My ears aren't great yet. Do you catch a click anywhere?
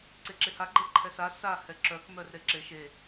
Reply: yes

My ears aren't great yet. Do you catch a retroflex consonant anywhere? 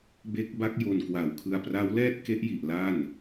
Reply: no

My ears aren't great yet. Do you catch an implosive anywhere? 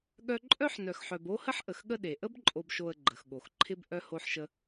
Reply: yes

